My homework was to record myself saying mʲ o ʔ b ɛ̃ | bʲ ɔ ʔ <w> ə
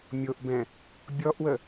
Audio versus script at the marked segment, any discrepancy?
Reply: no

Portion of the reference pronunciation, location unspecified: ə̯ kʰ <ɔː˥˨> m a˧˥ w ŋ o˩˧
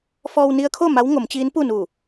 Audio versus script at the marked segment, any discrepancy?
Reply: yes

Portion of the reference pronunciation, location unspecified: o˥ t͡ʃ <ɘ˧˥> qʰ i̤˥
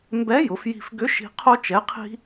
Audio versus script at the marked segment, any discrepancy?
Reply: yes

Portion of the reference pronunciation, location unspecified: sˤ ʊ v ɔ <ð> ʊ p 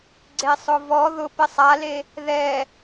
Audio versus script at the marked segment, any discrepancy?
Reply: no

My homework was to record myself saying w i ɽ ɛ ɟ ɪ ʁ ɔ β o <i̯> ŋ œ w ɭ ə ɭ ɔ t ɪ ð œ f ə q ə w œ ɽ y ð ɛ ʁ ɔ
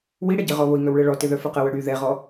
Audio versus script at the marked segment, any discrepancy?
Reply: no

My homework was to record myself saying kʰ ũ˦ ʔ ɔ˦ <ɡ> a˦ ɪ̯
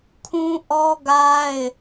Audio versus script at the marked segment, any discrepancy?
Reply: no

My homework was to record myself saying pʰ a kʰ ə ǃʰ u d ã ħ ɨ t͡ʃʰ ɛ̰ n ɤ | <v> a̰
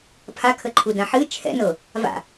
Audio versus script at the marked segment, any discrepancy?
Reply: no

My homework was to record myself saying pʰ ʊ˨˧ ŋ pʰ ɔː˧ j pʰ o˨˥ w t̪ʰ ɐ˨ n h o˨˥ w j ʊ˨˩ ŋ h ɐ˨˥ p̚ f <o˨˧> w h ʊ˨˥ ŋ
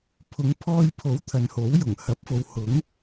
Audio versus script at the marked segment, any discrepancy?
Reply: no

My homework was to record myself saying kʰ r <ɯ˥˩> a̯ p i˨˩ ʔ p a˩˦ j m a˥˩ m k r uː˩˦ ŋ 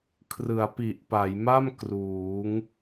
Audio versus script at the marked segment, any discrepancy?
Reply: yes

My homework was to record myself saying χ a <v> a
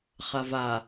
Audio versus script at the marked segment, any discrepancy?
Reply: no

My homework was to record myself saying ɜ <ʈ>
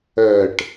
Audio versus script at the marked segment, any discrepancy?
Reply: no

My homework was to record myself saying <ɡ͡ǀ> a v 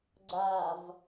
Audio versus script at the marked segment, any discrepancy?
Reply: no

